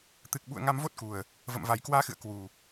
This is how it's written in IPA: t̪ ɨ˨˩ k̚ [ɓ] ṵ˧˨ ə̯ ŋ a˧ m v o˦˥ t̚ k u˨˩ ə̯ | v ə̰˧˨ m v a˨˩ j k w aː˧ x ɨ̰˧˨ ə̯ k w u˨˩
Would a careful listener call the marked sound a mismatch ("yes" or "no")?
no